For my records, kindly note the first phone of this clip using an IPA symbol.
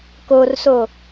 k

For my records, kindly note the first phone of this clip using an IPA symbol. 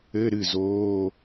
ɘ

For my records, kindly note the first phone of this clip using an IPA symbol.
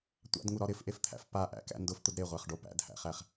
tʷ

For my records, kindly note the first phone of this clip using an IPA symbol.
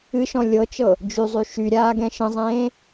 ɨ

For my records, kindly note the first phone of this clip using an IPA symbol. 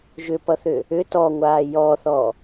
ʒ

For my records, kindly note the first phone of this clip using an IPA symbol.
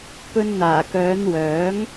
p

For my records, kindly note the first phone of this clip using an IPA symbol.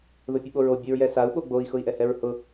ð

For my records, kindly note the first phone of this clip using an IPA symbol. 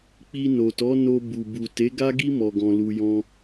k͡p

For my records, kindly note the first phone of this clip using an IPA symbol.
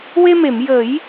w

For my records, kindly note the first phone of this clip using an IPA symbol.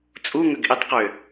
t͡sʼ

